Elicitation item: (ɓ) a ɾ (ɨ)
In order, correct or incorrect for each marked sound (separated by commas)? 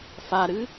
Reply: incorrect, correct